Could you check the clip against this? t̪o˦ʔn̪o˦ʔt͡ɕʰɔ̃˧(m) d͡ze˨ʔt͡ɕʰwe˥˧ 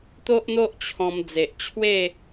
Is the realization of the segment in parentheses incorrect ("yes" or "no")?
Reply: no